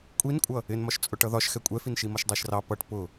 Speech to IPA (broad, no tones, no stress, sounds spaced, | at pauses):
kʷʼ i n kʷʼ ʌ | ɪ n m ɒ ʃ t͡sʼ ʊ ʈ ʌ ð ɒ ʃ x ɛ kʷʼ ɛ f i n ʃ i m ʌ ʃ dˤ æ ʃ r ɑ p ʌ ʈ p ʊ